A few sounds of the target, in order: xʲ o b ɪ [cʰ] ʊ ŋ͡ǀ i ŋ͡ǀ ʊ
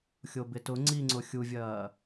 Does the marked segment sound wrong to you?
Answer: yes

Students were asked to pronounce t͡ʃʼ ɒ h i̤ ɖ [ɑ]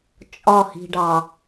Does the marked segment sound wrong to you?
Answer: no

